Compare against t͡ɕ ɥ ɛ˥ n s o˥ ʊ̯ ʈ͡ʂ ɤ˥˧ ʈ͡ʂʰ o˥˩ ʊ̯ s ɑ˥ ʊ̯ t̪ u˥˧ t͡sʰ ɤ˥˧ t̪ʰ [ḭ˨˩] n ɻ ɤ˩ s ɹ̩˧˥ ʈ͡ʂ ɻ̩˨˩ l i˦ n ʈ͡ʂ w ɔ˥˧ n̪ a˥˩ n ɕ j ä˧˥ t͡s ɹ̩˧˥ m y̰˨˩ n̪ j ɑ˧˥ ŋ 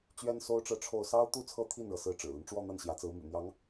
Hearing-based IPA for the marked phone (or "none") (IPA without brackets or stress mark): i˥˩